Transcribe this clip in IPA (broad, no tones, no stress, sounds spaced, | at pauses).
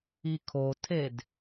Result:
i kʰ o tʰ e d